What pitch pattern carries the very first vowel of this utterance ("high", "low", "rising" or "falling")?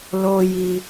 high